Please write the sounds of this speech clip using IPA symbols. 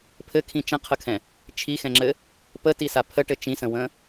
pʰɘkʰĩ t͡ʃə̃qʰəkʰɛ̃ | t͡ʃʰixɛ̃ŋ͡ǁɘ | pətisa pʰəʈɘ t͡ʃĩsə̃wə̃ː

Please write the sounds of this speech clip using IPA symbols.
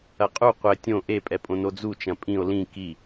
ɐqʼu qʷɘ tʲõ ʔepʼɛpʼõ nod͡zut͡ʃɐ̃ pʼĩo̯ lĩ ki

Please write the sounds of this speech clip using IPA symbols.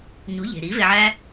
ɲu˨˦ʎe̤˨ɾi˨˦ ve˧ʕæ˦

